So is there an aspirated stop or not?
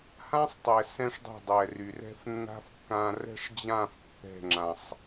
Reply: no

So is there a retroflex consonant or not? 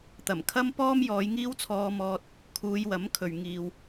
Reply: no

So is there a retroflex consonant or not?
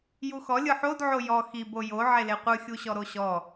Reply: no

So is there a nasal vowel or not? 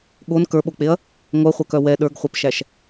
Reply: no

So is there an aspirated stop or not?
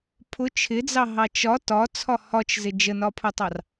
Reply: yes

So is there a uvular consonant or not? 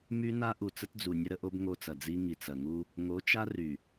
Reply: no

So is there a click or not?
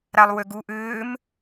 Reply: no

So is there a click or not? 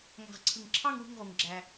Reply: yes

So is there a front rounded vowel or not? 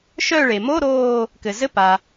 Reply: yes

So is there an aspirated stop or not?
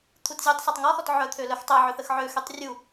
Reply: yes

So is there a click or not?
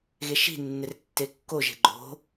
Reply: yes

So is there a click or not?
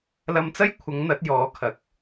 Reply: no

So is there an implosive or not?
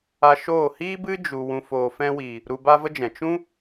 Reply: no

